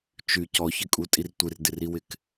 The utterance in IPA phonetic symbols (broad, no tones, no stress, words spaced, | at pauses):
t͡ʃy cɔçɪkʼutʼir tʷɪrdɪriwɪk